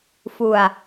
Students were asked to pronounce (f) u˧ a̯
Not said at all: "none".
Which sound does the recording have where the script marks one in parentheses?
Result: f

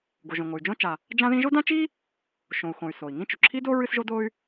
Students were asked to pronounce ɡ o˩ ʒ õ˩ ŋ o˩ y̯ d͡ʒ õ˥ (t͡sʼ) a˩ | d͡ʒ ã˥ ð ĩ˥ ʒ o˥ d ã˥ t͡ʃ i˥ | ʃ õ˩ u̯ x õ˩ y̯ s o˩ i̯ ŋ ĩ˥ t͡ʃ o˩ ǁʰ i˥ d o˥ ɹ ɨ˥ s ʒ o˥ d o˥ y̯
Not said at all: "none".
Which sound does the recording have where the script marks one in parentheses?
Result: t͡ʃ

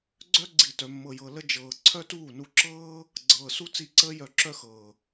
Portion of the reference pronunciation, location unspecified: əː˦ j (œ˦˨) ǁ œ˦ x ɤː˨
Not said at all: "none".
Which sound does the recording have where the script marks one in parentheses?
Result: œ˦˨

